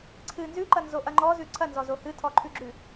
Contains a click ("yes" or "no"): yes